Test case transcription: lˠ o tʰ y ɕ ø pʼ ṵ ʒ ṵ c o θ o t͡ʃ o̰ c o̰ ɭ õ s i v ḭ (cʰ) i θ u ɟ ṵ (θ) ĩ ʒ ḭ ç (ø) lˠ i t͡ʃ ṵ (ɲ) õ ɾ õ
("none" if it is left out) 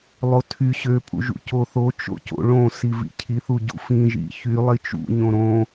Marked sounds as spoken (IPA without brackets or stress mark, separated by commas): cʰ, f, y, ɲ